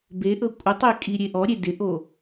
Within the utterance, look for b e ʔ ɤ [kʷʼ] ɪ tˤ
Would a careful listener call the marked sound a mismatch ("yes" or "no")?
no